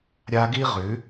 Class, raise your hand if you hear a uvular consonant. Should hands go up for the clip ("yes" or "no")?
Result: yes